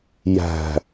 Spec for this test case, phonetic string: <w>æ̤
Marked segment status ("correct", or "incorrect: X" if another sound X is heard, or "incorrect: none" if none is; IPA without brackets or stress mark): incorrect: j